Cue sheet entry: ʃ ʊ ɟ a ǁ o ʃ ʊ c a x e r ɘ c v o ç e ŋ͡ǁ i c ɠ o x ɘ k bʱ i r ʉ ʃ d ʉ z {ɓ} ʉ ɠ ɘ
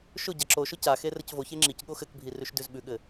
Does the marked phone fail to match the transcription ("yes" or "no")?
no